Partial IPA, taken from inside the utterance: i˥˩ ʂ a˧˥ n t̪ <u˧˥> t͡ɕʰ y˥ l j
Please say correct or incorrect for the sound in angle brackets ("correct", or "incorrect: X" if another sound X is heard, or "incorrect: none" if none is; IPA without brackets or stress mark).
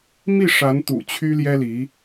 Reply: incorrect: ṵ˨˩